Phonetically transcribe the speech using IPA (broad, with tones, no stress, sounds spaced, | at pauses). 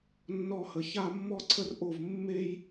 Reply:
nː ɔ˧ h ə˨ ç a˦ mː ɔ˦ ǀʰ ə˦ r ʔ o˦˨ v mː e˦ j